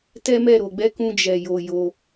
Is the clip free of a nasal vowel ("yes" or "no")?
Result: no